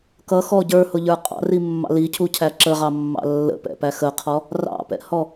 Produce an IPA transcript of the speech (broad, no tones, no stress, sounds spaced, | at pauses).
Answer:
k ʌ x ɔ ɟ ə˞ h ʊ ʎ ə˞ qʼ ɑ̰ r i mː ɑ̰ l i cʰ u cʰ æ ǁ ə ʁ ɑ mː ɑ̰ lː ə̰ p ɛ̰ p æ x ə qʰ ɔ | r ɑ̰ p ɛ̰ h ɔ